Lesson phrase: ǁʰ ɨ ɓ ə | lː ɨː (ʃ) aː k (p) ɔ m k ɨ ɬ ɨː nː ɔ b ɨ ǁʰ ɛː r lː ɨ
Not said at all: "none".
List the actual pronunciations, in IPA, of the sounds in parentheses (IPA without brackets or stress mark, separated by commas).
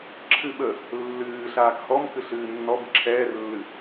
ɬ, h